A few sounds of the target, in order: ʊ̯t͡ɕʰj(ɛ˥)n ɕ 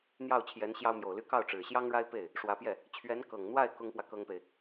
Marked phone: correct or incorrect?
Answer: incorrect